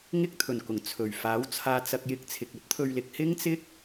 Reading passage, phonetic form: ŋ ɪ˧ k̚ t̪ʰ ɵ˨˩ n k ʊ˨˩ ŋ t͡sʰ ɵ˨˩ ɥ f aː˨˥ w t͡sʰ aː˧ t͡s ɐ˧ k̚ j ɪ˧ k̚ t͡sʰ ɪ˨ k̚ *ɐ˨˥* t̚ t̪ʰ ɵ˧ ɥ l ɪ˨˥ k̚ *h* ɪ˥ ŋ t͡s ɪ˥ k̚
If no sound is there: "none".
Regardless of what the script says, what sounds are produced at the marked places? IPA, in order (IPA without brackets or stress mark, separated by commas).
ɐ˥, h